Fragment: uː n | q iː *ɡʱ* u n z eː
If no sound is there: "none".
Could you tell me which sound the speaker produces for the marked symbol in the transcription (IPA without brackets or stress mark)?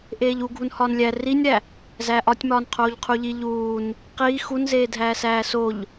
x